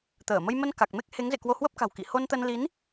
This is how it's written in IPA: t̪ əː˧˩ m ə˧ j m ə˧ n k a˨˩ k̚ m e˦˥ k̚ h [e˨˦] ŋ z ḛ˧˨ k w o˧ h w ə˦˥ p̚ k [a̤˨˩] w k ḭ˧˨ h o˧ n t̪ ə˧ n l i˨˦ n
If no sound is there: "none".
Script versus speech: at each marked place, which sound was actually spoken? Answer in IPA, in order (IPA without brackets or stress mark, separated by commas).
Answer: e˨˦, a̤˨˩